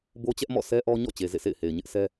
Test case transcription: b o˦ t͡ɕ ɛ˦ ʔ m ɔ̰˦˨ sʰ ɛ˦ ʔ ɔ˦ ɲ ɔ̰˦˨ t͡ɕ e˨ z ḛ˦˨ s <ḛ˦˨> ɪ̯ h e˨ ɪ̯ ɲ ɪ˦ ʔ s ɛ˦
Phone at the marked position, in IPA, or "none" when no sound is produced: ḛ˦˨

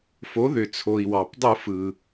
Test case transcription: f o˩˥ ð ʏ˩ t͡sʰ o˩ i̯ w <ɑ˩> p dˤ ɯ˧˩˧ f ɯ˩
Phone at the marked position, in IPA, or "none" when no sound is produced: ɑ˩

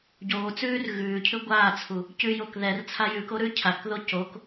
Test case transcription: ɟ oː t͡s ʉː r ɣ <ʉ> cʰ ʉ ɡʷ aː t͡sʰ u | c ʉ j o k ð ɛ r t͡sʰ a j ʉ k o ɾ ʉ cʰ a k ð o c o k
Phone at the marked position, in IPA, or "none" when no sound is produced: ʉː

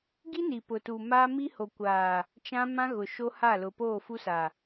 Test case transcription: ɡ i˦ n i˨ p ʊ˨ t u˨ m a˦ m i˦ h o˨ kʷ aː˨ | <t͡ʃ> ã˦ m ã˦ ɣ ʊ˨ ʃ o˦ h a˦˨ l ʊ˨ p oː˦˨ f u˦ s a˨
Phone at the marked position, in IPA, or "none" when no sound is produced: t͡ʃ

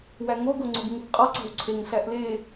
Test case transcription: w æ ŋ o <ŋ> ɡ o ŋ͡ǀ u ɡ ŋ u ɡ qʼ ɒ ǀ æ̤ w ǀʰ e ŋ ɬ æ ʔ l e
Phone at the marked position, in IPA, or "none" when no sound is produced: none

